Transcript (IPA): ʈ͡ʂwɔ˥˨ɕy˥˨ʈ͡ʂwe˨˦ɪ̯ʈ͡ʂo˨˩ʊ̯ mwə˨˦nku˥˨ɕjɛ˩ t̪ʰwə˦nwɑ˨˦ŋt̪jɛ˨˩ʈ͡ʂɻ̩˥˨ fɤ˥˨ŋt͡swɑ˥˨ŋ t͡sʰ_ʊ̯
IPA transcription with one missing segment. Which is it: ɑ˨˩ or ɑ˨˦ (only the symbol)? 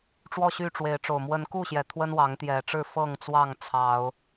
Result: ɑ˨˦